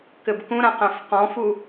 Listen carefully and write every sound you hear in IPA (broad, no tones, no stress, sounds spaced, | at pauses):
k ɘ b k ũ ɾ ã q æ̃ f q ɔ̃ f u